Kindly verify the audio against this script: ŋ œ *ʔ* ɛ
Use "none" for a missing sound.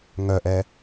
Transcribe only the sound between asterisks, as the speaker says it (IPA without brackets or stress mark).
ʔ